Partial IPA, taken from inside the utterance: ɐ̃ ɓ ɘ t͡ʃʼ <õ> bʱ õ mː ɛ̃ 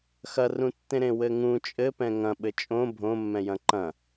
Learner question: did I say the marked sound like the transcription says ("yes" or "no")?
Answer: yes